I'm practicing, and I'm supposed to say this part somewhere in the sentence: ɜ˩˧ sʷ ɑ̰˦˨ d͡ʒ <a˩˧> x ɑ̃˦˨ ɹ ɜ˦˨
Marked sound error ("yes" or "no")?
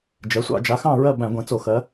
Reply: no